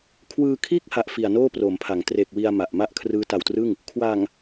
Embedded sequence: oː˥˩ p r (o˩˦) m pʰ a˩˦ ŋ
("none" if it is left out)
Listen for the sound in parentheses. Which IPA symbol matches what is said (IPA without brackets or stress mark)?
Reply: o˩˦